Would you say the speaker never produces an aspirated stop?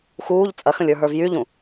yes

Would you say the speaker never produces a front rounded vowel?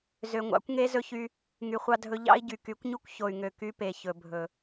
no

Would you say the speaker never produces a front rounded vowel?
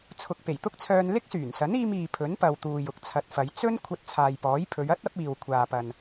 no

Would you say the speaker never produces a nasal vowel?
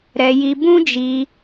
no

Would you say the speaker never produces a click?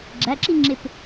no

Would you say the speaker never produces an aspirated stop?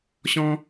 yes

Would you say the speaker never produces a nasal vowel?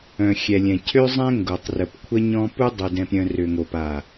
no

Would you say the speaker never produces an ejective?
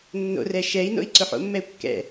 yes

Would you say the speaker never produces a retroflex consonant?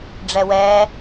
no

